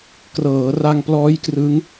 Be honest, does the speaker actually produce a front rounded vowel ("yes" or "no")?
no